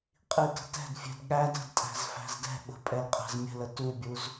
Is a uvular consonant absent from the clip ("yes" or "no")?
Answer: no